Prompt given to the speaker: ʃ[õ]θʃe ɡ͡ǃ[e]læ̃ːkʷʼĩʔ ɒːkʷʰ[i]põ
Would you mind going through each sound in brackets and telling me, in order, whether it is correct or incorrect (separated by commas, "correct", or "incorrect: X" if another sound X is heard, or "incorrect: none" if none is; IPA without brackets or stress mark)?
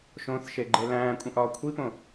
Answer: correct, correct, correct